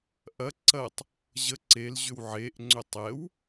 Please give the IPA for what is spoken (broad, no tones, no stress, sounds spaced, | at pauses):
ʔ ɐ ǀ ɐ tˤ | ʑ ə ǀ e l ʑ ʏ w ʕ e ʔ ŋ͡ǀ ʏ tˤ ɛ w